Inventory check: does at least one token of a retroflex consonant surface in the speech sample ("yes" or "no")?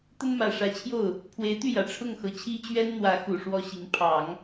yes